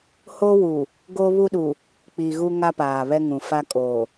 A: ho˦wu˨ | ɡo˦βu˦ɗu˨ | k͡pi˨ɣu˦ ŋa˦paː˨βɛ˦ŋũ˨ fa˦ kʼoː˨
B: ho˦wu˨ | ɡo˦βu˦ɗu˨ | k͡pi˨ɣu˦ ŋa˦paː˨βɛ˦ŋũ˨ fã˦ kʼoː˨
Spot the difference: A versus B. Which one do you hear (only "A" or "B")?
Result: A